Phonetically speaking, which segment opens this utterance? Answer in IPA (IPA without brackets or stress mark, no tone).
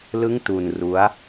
l